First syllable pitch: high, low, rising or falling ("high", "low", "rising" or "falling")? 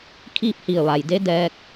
falling